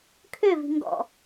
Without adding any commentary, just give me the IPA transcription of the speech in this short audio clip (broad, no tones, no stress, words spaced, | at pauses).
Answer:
kʰøvi̤ ŋɡɔ̰